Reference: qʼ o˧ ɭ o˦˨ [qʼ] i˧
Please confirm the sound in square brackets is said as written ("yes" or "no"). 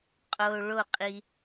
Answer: yes